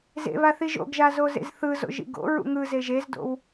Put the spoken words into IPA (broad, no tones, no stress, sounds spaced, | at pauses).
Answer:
z ḛ β a θ i ʒ o̰ ɡ ʒ a z o z ḛ z θ ɯ z o̰ ʒ ḭ ɡ o̰ ɹ ṵ ŋ ɯ z e ʒ e z d o̰ w